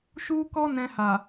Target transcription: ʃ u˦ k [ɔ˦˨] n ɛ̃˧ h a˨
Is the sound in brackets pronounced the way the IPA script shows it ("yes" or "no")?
no